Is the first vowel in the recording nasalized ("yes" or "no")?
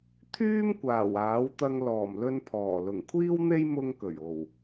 no